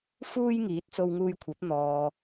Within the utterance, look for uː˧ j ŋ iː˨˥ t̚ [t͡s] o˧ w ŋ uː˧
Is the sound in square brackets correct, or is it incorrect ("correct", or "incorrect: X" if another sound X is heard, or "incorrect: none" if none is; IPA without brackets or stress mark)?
correct